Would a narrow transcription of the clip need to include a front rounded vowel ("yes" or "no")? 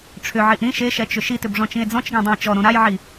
yes